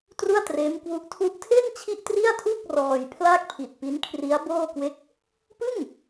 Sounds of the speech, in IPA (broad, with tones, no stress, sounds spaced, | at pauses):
t r u˥˩ a̯ t r eː˦˥ m k w u˦˥ ʔ tʰ u˥˩ ʔ tʰ e˥˩ n t͡ɕʰ i˥˩ ʔ t r i˥˩ a̯ tʰ u˥˩ k̚ r ɔː˧ j pʰ l aː˥˩ k̚ pʰ i˨˩ t̚ p i˦˥ n kʰ r i˦˥ a̯ b oː˥˩ k w e˦˥ k̚ | p ɯ˥˩ ŋ